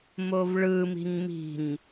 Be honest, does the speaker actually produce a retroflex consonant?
yes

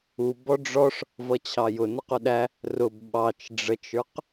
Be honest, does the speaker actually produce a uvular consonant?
yes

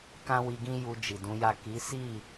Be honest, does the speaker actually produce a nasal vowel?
yes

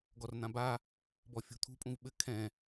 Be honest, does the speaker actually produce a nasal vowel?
yes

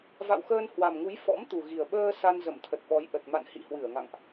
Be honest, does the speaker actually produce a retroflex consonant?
no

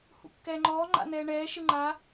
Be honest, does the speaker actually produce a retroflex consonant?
yes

